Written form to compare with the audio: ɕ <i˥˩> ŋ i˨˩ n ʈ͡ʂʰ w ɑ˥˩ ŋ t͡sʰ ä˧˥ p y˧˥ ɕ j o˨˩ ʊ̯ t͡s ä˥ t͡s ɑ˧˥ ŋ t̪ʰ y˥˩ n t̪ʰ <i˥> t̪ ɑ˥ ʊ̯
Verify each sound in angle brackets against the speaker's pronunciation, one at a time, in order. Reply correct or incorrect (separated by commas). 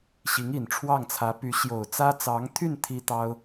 incorrect, correct